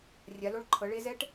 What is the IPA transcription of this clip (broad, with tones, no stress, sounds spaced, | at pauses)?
rʲ a˨˦ l o˦˥ ɭ ǃʰ ɤ˨˦ ɭ e˦˥ z ɛ˦˥ ʈ